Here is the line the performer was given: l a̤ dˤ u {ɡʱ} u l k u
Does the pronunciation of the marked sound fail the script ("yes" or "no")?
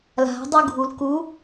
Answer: no